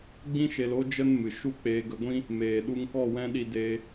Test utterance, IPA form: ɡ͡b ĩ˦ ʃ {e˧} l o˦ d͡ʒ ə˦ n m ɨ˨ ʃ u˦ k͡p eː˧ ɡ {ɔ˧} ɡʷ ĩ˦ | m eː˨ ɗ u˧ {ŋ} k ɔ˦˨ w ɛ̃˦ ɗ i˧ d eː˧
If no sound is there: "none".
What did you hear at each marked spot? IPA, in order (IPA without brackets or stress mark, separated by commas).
e˧, ə˧, ŋ